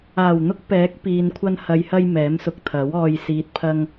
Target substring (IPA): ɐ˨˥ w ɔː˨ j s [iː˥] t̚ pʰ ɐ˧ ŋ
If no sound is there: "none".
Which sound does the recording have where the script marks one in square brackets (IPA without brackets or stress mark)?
iː˨